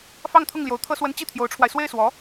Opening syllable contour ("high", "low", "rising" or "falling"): falling